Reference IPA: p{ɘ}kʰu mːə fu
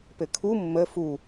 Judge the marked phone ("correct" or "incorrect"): correct